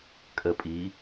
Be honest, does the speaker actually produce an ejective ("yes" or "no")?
yes